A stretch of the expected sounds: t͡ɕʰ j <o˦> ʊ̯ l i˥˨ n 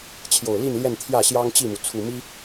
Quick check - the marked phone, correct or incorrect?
incorrect